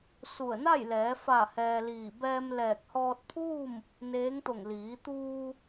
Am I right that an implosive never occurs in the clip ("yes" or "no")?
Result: yes